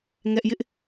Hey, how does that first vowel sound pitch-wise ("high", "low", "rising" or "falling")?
high